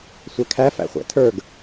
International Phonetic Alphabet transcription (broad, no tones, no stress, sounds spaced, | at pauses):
sʷ ɛ kʰ æ f æ̰ χʷ æ̰ tʰ ə˞ ɡ